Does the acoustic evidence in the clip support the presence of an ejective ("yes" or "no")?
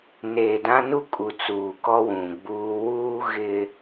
yes